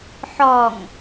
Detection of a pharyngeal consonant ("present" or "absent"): present